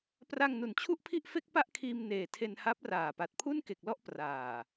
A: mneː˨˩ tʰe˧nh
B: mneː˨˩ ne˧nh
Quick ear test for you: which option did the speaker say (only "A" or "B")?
A